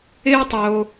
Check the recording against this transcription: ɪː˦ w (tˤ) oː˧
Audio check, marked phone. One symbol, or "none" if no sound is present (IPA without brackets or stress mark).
tˤ